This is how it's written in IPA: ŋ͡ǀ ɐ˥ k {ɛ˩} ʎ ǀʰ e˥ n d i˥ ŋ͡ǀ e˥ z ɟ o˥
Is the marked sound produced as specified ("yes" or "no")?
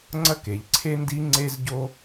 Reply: no